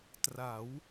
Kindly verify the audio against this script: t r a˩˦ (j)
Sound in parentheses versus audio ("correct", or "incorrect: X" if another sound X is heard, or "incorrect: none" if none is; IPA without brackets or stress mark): incorrect: w